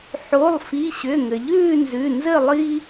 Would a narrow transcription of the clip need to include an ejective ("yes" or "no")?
no